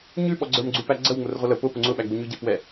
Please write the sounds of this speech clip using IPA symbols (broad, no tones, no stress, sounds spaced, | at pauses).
ɲ ʉ ɓ ɔ ɡ͡ǀ ə˞ m ɡ͡ǀ ʉ p æ ɡ͡ǀ ə w ŋ͡m ʊ r ʁʷ ə l ə p ʊ p ʊ ŋ͡ǀ ʊ ɓ æ ɡ͡b u ɲ ʉ ɟ ɛ p w ɛ